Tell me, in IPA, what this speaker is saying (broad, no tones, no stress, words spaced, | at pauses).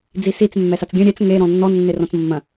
d͡zisit͡s mːɛsat͡sɡʲɐ̃ ɾʲɛt͡s ŋe ɾɔ̃nːɔ nːerɔ̃t͡smːɐ̃